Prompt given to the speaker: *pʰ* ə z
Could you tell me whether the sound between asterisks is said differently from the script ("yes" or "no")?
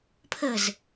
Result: no